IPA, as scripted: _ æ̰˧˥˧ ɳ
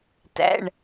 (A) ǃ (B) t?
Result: B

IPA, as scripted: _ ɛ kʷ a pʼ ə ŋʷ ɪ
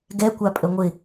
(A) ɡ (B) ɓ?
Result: A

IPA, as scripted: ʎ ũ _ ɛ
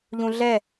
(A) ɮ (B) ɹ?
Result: A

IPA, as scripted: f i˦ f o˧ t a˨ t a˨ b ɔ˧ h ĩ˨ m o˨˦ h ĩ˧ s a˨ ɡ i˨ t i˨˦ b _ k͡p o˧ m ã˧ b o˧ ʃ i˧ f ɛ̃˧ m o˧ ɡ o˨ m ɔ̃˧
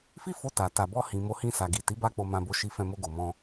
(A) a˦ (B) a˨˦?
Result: A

